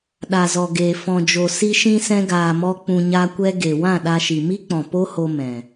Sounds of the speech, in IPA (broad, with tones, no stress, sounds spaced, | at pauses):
ɗ a˨ z ɔ˨ ɡ eː˨ f ɔ̃˨ d͡ʒ o˨ s i˧ ʃ ĩ˧ s ɛ̃˧ ɡ aː˨ m ɔ˧ k͡p ũ˧ ɲ a˦ kʷ ɛ˦ ɡ e˨ w ã˦˨ ɗ a˧ ʃ i˨ m i˦ k͡p ɔ̃˨ p o˦ h o˧ m ɛ̃˨